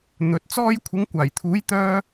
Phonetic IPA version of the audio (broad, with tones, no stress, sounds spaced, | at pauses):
n̪ ɵ˨ t̚ t͡s ɔː˧ j kʷʰ ɪ˨˧ ŋ kʷ aː˨˩ j t̪ʰ uː˨˥ j t̪ œː˥